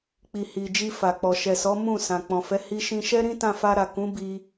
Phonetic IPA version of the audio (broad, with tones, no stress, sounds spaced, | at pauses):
k͡p i˨ h i˨ d͡ʒ i˧ f a˨ k͡p ɔ˨ ʃ ɛ˨ s ɔ˨˦ m ũ˦˨ s ã˨ k͡p ɔ̃˨ f ɛ˨˦ h i˧ ʃ ĩ˧ ʃ ɛ˦ ɾ ĩ˦ t ã˧ f a˧ ɾ a˨ k ũ˨˦ b i˧